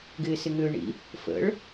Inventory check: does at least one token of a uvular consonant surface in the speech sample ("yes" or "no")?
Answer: no